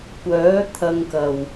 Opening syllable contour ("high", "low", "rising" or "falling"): rising